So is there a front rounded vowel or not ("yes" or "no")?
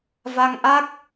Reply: no